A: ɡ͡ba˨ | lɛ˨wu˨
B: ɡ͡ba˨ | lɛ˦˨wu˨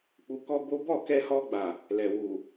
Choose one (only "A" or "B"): A